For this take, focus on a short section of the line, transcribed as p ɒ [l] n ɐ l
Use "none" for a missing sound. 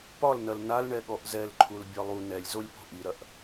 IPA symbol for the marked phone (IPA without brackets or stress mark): l